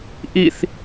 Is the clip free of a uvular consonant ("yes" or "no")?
yes